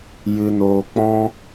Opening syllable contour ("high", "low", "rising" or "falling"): high